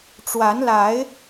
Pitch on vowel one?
rising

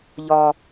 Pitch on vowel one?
high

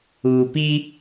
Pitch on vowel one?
low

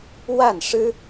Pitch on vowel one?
falling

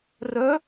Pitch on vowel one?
rising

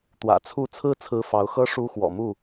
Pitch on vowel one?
low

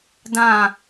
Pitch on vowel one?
falling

